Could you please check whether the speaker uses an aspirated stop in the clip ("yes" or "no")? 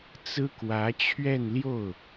yes